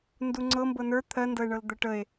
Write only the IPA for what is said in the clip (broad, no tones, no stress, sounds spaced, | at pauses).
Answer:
n d u ŋ͡ǀ ɤ m b ɤ n ə˞ t̪ʰ ɜ n d ɤ e̯ ɳ ɤ l d̪ ə ʈ ə e̯